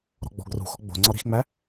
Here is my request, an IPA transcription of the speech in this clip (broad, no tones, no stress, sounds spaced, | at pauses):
ɾ ɔ̤ ɡ͡b ɔ̤ ɡ r ṳ x ɔ ɡ͡b o̤ ŋ͡ǀ ɒ ɾ i̤ x ŋ͡m æ